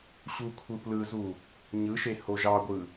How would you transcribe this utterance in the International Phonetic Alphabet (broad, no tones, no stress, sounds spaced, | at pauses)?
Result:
ɕ u kʷʰ ɯ p l ɯ z u | ɲ ɯ ʃ e h o ʒ ɑ ɡʷ ɯ